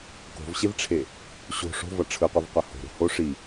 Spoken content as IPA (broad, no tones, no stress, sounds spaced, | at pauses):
k o̤ v ɕ e v ʈ͡ʂʰ e | ɕ o̤ ʂ o̤ v ʌ ʈ͡ʂʰ ɯ qʷ ɯ v qʷ ʌ h o̤ ɾ o̤ h o ʂ i